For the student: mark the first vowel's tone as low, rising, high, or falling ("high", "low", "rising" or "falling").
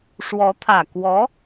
rising